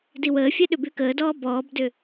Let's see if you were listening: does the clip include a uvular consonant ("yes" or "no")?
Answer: no